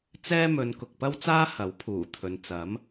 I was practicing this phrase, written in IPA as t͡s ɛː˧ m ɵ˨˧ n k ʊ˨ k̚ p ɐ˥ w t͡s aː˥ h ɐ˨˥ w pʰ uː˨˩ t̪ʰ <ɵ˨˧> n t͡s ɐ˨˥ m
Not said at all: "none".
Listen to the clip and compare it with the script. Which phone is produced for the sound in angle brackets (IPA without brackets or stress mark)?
ɵ˨˧